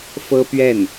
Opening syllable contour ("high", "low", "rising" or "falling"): high